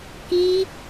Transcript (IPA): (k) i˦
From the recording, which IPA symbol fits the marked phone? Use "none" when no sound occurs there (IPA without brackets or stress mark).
k